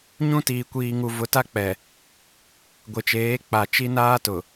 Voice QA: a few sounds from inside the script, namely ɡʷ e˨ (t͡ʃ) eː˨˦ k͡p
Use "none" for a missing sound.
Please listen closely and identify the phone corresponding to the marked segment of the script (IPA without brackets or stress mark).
t͡ʃ